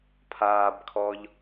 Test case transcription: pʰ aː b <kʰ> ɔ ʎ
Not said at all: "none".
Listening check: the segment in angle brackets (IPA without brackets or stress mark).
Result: kʰ